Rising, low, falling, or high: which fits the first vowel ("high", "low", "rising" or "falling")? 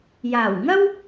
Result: low